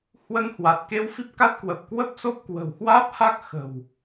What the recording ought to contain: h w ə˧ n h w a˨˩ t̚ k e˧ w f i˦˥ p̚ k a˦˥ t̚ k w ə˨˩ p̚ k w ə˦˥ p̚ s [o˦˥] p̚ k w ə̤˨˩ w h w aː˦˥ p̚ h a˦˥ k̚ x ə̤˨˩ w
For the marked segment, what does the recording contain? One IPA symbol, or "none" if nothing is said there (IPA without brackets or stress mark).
o˦˥